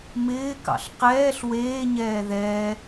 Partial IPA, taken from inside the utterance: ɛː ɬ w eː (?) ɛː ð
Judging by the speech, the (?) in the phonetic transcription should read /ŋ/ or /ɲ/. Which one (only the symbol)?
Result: ɲ